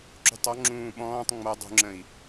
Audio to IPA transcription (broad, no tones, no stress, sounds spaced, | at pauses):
ǁ ṳ tˤ ɔ ŋ͡ǁ ũː ɓ ɔ̃ː tˤ ŋ͡m ʌ dˤ ṳ ŋ͡ǁ ə̃ i̯